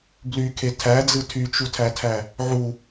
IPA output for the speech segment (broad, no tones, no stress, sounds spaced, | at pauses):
b l y kʰ e tʰ æ d͡z ɯ tʰ y t͡ʃ u tʰ æ tʰ æ | ʕ u